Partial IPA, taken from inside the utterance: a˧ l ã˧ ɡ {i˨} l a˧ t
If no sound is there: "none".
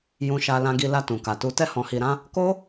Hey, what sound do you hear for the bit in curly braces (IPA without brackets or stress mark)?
i˧